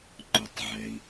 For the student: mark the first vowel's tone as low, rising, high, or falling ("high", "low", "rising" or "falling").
low